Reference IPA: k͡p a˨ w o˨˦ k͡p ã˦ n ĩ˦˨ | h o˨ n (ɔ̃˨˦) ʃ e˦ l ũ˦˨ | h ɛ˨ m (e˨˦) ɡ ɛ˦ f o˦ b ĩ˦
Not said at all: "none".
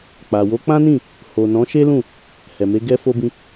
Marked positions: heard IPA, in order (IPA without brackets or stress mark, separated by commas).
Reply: ɔ̃˨˦, e˨˦